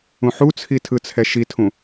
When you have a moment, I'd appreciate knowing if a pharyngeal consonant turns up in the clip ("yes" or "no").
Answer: yes